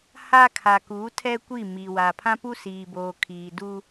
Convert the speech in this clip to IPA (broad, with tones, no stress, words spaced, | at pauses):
ha˦ kʰa˨ku˨˦ tʰɛ˦kʷi˦˨ mi˨wa˨ pʰã˦pu˦siː˨boː˨ kʰiː˨du˦